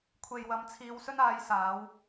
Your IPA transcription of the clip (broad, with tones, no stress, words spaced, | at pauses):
kʷʰe˨jwɐ˨˧mt͡sʰiː˨˧w sɵ˧naː˨˧jsaː˨˧w